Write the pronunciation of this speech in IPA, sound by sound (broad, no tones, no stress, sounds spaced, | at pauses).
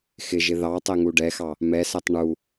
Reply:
x ɪ ʒ ɪ ð ɑ tˤ ɛ ŋ u ɖ ɛ x ɑ | m ɛ s æ tˤ ɳ u